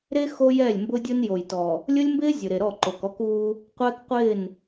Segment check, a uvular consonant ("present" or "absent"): present